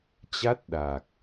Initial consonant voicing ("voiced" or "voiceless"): voiceless